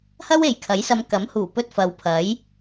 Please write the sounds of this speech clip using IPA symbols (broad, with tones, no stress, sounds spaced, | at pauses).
h ɐ˥ w e˨ j kʰ ɐ˨˥ j s ɐ˨˧ m k ɐ˨˥ m h uː˨˩ p ɵ˧ t̚ f ɐ˨ w pʰ ɐ˨˥ j